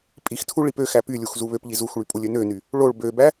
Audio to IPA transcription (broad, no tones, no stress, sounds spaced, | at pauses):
pʼ i x tʰ u ɭ i p ø x æ p y lʲ u x z u β ø p ʎ i z u x ɭ y pʼ u lʲ ø n ø n y | ɭ o ɭ b ø b æ